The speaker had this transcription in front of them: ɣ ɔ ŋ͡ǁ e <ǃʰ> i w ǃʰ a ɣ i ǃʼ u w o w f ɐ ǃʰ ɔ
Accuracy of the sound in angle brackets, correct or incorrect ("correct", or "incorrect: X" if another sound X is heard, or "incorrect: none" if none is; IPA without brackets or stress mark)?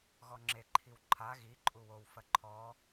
correct